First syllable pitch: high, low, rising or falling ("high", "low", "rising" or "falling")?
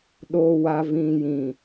low